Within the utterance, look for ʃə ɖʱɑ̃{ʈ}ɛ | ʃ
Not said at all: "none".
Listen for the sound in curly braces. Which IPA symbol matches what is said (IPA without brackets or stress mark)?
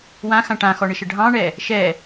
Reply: ɳ